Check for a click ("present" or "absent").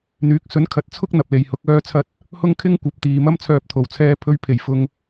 absent